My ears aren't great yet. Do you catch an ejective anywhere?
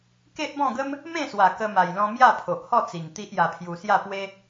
no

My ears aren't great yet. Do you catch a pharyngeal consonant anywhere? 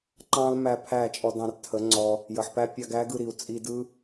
yes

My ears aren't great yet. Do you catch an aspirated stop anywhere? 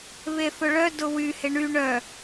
no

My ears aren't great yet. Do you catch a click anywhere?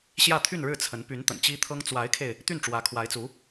no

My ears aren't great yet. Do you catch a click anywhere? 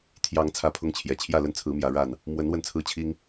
no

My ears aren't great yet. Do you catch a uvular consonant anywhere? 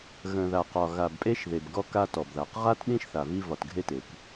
yes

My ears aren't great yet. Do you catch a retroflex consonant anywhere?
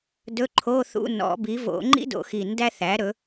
no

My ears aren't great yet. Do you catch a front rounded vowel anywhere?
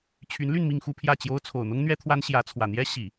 yes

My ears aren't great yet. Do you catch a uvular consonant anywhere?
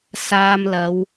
no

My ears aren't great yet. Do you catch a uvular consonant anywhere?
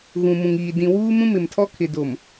no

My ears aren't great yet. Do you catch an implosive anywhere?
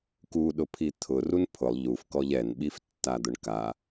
yes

